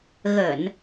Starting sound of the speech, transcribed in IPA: ɣ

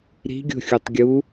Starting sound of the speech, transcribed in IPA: ɾ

